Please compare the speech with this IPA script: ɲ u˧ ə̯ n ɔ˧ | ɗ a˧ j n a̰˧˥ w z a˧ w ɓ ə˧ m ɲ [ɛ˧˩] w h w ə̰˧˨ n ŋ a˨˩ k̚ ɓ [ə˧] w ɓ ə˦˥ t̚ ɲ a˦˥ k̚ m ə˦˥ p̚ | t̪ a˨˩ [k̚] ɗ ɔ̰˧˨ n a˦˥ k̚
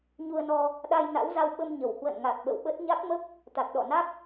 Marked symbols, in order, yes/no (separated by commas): no, no, yes